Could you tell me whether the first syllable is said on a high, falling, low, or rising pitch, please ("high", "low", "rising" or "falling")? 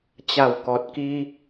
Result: low